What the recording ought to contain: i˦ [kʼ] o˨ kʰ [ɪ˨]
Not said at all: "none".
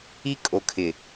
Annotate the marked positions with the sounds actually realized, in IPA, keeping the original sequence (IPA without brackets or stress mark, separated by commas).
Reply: kʼ, ɪ˨